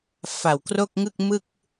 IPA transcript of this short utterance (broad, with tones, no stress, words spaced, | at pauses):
fa˨˩wkro˥˩k̚ŋɯ˥˩k̚mɯ˥˩k̚